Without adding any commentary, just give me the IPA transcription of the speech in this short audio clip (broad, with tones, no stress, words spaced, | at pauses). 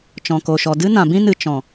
t͡ʃɔ̃˨ko˨ʃɔ˨ dɨ˦nã˨bĩ˦nɨ˨ t͡ʃɔ̃˨